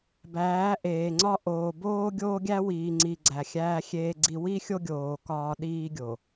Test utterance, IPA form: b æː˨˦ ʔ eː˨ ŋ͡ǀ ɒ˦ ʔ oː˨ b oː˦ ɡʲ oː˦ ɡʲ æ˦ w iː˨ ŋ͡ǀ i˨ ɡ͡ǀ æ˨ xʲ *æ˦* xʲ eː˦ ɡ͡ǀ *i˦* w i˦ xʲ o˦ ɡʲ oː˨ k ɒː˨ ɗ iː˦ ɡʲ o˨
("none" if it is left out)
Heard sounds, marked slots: æː˦, i˦

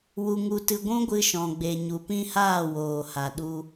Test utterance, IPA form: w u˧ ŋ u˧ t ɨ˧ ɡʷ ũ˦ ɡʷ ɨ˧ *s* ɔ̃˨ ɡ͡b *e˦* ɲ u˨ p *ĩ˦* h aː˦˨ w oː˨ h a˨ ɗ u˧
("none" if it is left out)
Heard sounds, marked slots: ʃ, e˨, ĩ˦

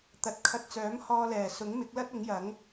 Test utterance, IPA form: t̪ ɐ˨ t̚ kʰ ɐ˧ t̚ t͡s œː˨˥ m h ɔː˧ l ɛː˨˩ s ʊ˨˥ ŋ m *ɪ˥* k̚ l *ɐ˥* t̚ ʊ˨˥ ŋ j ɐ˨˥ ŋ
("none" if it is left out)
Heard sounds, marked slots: ɪ˨˥, ɐ˥

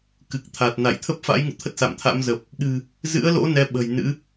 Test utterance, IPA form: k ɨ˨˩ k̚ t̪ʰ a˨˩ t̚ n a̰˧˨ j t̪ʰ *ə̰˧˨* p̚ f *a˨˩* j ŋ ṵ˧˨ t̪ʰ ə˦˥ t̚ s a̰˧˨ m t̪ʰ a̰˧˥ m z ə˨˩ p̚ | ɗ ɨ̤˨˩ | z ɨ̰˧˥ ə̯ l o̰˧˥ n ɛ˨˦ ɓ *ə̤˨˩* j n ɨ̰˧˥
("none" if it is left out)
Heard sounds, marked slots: ə˦˥, a̰˧˥, ə̤˨˩

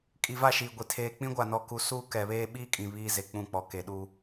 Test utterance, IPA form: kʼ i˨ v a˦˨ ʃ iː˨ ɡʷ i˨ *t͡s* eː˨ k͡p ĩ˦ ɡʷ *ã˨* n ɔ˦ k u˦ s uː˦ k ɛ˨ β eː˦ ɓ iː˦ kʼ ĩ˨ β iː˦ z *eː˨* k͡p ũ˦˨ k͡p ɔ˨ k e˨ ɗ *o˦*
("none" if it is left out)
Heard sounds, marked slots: tʰ, a˨, e˨, u˦

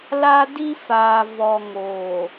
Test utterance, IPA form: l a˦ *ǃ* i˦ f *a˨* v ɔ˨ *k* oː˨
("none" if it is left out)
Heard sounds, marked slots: d, aː˨, ŋ

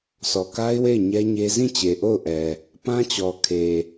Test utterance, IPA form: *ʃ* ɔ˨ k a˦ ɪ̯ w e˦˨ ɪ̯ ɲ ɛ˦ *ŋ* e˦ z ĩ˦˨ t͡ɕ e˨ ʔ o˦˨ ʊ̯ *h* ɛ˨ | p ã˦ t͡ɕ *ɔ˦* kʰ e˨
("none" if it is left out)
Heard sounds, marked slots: s, ɲ, ʔ, ɔ˨

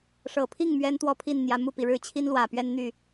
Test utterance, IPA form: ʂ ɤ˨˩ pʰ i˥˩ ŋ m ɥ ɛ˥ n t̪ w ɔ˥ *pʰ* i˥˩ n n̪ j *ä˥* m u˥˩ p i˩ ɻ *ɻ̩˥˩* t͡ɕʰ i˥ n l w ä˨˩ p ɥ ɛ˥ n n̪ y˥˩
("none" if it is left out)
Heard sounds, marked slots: pʰ, ä˧˥, ɻ̩˥˩

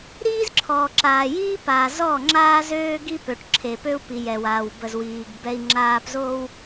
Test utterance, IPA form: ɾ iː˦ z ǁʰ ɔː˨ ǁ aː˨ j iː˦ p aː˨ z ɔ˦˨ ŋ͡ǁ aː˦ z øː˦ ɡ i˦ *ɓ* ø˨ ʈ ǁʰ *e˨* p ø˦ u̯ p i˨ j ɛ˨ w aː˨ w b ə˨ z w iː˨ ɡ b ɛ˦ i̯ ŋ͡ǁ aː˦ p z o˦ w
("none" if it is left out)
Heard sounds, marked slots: p, e˨

